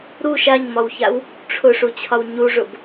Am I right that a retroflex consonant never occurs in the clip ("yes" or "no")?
no